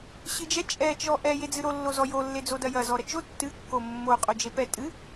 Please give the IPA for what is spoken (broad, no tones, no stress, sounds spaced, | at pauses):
ɕ ɨ d͡ʒ ɛ t͡ʃʼ ɛ t͡ʃ ɔ ʔ ɛ j e d͡z ɨ ɾ o lː o z ɔ j o lː e d͡z o d ɐ j ɐ z ɔ ɾ ɐ t͡ʃ o tː ɨ kː o mː o qʼ o d͡ʒ e p ɛ tʼ ɨ